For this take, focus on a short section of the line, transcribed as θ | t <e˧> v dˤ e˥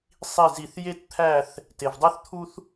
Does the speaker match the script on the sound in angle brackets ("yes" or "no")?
yes